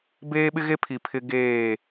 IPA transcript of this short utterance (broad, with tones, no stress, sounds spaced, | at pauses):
b eː˦ ɓ ɪ˦ ɣ e˦ pʰ i˨ pʰ ɪ˦ ɡ eː˦˨